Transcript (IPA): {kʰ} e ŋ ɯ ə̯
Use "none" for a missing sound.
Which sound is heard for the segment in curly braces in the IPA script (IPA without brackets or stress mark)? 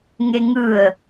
ŋ